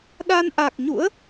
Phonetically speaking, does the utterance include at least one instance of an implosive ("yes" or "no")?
yes